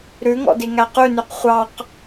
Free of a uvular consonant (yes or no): no